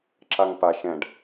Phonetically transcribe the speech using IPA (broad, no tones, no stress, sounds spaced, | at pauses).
ǁ a ŋ p a ʃ ɛ̃ ɖ